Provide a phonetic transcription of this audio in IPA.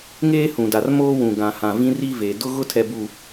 ŋeː˦hũ˨da˨r moː˦wũ˨ ɡã˨ hã˨vĩ˦ri˦ ve˨ dʊ˦ ɣʊ˦ tʰɛ˨bu˨

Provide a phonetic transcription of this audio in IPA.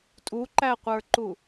tʼuǃæqʷə˞ǃu

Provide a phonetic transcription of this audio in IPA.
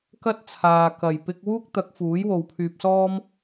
kɐ˥t̚t͡sʰaː˨ kɐ˨˩j pɪ˧k̚wuː˥k̚t̪ɐ˨˥k̚ fuː˨˥jwo˨wpʰyː˧p̚sɔː˥m

